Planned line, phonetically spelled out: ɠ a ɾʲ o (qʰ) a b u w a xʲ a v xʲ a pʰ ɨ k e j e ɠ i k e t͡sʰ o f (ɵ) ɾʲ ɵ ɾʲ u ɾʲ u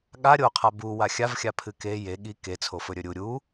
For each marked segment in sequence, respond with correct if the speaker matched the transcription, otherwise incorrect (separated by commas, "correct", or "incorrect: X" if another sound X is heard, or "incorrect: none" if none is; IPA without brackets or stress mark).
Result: correct, correct